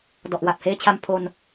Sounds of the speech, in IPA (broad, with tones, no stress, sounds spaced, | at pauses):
d ɔ˨˩ ʔ w a˨˩ p̚ h eː˦˥ t͡ɕʰ a˧ m pʰ o˧ n